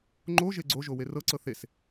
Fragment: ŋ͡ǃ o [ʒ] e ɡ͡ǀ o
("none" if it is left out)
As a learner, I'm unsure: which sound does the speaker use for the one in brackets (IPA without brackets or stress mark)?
ʒ